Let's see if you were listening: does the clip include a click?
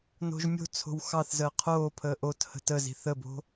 no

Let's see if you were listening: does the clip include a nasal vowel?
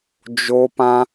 yes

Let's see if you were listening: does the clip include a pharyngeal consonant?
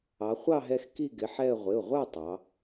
yes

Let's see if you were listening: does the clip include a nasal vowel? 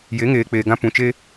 yes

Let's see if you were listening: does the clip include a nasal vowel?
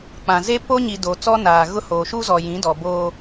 yes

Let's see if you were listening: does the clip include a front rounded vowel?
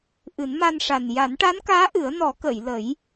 no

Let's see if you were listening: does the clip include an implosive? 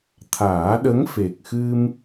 yes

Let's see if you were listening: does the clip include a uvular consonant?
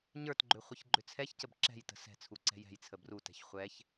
yes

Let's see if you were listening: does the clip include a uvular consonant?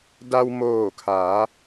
no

